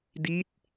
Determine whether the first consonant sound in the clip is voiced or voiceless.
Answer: voiced